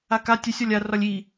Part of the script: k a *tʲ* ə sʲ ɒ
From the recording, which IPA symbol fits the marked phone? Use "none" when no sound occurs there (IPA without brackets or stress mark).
tʲ